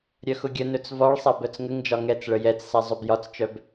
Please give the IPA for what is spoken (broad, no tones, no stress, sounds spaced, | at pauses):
ɾʲ œ x ʊ ɡʲ ə n ɵ t͡s v ɒ ɭ sˤ a b œ t͡s ŋ ə ŋ d͡ʒ ɒ ŋ ɛ t͡s ɭ ə j ɛ t͡s s a zˤ ɵ b j ɒ t͡s t͡ʃ œ b